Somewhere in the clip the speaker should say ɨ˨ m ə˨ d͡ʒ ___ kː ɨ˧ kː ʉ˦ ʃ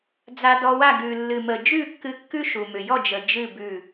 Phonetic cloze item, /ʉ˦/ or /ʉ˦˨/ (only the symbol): ʉ˦˨